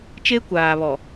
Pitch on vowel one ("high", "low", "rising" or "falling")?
high